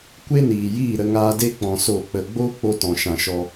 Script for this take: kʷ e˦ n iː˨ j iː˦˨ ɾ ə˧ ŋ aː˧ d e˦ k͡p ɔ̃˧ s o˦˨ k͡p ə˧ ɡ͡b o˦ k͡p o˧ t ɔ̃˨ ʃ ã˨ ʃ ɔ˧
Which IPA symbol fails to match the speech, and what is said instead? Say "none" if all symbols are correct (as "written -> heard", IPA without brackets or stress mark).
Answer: none